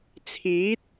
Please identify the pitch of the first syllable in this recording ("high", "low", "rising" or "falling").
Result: rising